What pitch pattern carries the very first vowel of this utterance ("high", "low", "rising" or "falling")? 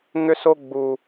high